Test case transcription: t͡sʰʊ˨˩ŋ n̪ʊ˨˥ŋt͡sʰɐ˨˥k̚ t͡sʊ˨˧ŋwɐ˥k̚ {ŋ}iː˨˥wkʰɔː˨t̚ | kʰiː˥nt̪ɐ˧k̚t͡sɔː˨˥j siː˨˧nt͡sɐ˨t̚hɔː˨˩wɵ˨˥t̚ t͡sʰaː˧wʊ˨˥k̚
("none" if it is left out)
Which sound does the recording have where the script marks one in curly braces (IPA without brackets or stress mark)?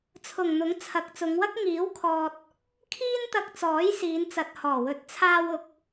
ŋ